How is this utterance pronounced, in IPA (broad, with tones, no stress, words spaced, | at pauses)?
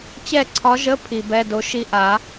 t͡ɕɛ˥˨ǀʰɒ˧˥ʒə˧˥˧ pʰi˨bɛ˧˥˧do˧˥ʃi˥˨ ʔa˨˩˦